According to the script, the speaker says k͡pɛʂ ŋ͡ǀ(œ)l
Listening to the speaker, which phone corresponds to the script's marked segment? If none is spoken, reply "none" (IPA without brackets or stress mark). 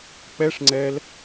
ɛ